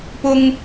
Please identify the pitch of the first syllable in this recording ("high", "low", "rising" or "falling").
high